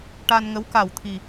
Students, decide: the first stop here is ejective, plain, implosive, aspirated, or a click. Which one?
plain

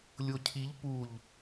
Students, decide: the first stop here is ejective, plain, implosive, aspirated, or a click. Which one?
aspirated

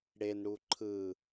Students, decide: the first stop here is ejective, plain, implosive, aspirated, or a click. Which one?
click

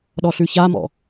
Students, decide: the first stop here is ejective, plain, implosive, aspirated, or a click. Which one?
implosive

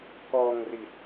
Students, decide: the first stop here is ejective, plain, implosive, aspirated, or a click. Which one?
plain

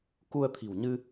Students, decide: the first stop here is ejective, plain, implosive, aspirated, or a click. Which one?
plain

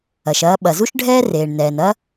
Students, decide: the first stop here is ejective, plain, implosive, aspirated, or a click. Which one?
implosive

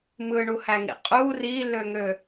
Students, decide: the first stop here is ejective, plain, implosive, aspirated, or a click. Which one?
ejective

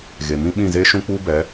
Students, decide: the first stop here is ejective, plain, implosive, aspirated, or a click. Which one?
implosive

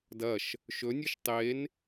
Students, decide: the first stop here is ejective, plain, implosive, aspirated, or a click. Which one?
plain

